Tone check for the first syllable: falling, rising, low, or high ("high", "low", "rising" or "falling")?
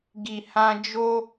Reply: low